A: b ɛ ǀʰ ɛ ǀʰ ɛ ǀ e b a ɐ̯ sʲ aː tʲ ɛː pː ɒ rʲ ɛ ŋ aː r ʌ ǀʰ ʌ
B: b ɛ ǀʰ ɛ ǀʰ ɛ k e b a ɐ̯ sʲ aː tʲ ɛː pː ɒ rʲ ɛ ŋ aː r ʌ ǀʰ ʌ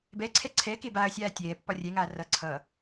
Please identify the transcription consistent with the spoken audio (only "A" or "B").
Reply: B